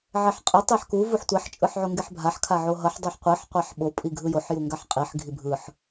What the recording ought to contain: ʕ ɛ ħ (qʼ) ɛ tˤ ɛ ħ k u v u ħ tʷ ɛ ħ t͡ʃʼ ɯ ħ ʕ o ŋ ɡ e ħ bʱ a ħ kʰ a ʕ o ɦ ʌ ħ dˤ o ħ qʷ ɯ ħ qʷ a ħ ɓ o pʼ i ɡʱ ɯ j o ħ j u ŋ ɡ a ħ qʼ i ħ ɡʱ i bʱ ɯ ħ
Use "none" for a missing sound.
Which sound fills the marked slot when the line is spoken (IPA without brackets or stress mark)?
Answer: qʼ